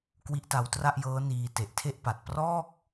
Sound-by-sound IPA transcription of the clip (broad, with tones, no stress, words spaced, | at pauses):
kwi˦˥ʔta˧wtra˥˩ʔjɤː˦˥ niː˧ te˨˩ʔtʰe˥˩ʔpa˨˩t̚ prɔː˥˩k̚